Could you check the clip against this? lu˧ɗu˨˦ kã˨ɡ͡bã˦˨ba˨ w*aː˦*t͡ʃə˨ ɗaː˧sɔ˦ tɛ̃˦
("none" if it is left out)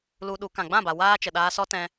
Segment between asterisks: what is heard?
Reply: aː˦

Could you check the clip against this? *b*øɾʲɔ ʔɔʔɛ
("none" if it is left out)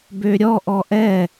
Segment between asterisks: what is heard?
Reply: b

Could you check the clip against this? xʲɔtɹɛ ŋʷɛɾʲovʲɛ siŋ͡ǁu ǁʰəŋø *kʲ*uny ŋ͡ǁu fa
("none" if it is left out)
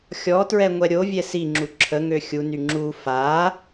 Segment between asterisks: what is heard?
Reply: xʲ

